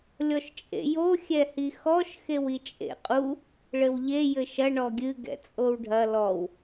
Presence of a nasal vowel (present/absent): absent